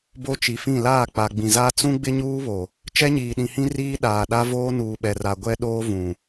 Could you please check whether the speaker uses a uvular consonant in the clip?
no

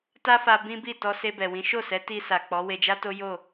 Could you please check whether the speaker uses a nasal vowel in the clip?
yes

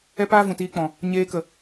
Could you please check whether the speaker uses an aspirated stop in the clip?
no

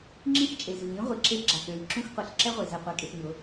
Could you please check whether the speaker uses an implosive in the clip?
no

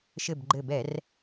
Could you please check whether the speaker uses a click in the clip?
yes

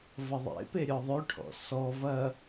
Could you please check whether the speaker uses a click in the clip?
no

